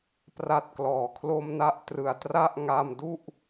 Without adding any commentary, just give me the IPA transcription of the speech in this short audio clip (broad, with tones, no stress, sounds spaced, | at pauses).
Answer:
p r a˥˩ t̚ k l ɔː˨˩ kʰ l o˥˩ m n a˦˥ ʔ t r ɯ˩˦ a̯ t r a˥˩ ʔ ŋ a˧ m d u˥˩ ʔ